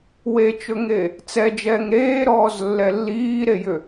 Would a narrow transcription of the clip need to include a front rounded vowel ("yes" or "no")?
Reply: yes